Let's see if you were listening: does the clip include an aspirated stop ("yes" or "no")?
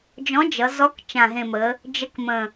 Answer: no